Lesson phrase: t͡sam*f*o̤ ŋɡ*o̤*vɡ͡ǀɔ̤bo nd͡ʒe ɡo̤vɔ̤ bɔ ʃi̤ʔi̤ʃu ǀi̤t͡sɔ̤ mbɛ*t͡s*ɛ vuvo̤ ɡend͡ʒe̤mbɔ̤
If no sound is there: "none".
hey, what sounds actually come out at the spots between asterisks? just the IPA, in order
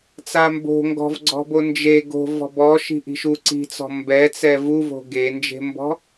b, ɔ̤, t͡s

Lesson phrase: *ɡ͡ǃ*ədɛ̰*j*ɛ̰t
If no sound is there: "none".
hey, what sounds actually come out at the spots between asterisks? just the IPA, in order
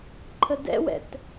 ǃʰ, w

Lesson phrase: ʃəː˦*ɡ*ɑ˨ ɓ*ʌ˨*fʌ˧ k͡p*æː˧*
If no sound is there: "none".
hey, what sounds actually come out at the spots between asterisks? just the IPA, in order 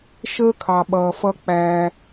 kʰ, ʌː˨, æː˧

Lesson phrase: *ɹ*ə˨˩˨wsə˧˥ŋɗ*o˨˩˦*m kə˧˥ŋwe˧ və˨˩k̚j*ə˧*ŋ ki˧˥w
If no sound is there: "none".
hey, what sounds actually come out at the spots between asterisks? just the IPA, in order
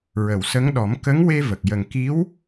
ɹ, ɔ˨˩˦, ə˨˩

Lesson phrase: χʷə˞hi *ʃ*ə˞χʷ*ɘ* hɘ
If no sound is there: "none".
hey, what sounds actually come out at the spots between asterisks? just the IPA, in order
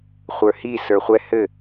s, ɛ

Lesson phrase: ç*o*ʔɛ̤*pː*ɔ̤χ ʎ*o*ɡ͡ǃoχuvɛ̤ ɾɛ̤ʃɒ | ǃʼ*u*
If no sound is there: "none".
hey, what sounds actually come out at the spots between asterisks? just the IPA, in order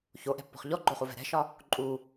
o, pː, ɔ, u

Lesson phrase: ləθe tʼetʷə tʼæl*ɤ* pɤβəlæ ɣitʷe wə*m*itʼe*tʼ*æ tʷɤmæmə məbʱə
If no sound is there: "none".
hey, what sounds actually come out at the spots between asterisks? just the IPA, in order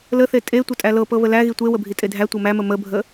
ɤ, bʱ, dʱ

